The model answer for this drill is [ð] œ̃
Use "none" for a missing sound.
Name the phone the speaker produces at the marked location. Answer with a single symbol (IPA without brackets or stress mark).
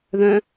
ð